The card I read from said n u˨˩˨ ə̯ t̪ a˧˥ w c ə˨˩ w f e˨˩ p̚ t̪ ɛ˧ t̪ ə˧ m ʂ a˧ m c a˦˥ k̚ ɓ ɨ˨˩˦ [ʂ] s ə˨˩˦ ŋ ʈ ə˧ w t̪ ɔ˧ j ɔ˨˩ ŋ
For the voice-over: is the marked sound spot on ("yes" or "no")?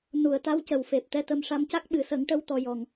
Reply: no